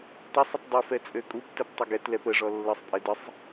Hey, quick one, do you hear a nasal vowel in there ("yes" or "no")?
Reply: no